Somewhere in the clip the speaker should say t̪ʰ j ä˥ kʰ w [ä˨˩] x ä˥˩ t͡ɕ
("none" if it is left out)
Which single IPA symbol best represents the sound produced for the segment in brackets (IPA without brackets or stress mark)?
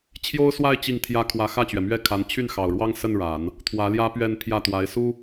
ä˧˥